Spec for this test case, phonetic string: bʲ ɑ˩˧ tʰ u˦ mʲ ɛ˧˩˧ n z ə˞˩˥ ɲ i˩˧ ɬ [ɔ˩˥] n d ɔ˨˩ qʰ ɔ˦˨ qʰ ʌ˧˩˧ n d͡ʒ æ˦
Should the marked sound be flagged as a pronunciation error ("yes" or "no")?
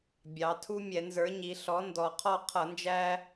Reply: no